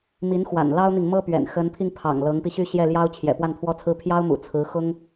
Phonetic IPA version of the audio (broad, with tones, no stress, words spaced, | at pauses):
mi˧˥nxwa̰˨˩n lɑ˥ʊ̯n̪i˨ŋ mɤ˥pɥɛ̰˨˩n xə˧˥npʰi˧ŋ pʰɑ̰˨˩ŋ lɤ˧˥ŋpi˧ɕy˥˧ ɕjɛ˥˩ljɑ˥ʊ̯ t͡ɕʰjɛ̰˨˩ pwa˥˩npʰwɔ˥t͡sʰɹ̩˥ pʰjɑ˥ʊ̯mṵ˨˩ t͡sʰɹ̩˧˥ xʊ˥ŋ